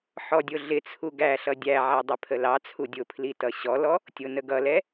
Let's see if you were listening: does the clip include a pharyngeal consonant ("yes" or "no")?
yes